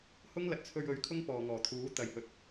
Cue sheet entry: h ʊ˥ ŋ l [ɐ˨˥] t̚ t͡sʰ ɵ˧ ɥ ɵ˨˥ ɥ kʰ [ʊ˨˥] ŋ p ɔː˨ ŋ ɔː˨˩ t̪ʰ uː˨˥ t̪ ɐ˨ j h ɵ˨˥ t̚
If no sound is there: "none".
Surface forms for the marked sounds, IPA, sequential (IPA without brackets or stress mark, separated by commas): ɐ˨˥, ʊ˥